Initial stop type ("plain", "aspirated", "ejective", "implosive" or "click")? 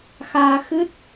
plain